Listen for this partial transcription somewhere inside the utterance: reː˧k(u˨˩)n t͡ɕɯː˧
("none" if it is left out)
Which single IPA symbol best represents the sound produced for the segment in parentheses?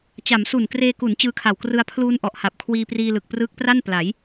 u˩˦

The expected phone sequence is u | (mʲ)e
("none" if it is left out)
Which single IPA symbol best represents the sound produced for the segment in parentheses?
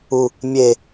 mʲ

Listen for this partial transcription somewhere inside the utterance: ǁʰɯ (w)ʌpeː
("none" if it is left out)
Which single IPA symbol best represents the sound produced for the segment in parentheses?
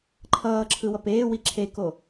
w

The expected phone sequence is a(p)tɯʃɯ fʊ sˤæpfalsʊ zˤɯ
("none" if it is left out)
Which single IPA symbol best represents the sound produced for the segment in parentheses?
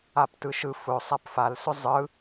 p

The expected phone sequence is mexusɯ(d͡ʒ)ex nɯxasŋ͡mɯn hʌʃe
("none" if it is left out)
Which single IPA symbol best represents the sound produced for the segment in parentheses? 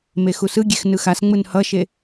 ɡʲ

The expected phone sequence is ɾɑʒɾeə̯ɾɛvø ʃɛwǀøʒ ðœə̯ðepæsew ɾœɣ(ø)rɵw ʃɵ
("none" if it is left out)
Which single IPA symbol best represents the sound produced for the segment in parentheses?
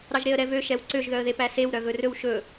ɵ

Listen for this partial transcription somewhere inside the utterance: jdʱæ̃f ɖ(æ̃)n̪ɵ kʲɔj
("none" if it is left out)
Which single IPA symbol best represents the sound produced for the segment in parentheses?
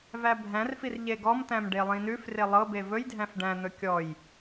æ̃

